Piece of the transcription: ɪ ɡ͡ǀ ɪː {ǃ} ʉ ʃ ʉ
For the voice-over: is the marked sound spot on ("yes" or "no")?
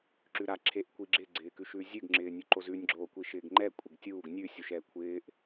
no